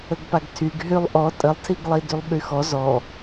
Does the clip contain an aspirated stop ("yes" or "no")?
yes